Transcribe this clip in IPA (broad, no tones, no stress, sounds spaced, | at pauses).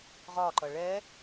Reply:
ʁ ɒ ǃ ʌ ɭ ɛ